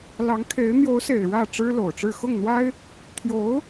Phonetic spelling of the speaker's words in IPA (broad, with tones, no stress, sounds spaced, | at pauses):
l ɑ˧˥ ŋ kʰ e˧˥ ɪ̯ n̪ j o˧˥ ʊ̯ s e˨˩ ɪ̯ ɻ ä˥˩ ʈ͡ʂ ɻ̩˥ l o˨˩ ʊ̯ ʈ͡ʂ ɻ̩˥˧ x ʊ˥˩ ŋ n̪ w a˥ ɪ̯ | t̪ʰ j o˧˥ ʊ̯